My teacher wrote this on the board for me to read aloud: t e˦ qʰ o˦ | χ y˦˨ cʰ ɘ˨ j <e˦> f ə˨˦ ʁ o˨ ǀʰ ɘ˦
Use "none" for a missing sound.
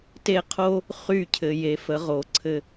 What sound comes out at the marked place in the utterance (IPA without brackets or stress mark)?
e˨